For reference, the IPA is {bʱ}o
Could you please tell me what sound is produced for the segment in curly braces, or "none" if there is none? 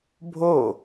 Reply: bʱ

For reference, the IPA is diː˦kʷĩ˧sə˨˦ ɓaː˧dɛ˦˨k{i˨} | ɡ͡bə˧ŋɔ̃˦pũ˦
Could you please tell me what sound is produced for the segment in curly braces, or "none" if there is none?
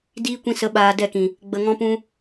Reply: ĩ˨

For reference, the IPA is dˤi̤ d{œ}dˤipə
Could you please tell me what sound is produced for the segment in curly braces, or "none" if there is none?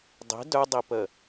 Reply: œ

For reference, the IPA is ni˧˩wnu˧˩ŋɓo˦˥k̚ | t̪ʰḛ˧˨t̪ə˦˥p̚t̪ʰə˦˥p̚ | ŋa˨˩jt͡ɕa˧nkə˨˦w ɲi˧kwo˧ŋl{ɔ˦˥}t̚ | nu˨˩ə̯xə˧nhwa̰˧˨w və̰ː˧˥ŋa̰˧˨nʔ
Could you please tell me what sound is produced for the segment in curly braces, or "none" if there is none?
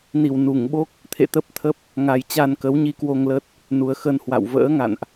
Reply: ə˦˥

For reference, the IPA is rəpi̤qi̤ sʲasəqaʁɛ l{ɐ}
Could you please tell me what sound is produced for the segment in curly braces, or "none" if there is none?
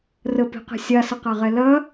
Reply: ɐ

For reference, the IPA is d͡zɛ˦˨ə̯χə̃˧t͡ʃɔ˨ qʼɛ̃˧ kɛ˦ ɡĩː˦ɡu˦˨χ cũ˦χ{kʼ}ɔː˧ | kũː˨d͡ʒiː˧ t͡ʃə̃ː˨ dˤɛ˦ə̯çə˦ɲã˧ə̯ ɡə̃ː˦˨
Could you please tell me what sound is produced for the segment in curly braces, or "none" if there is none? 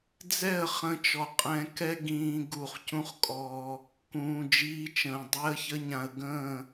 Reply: kʼ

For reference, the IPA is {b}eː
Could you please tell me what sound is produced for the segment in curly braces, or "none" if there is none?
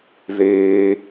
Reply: ð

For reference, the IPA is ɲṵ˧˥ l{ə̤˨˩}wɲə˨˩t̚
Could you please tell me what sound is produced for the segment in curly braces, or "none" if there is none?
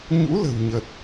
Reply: ə̤˨˩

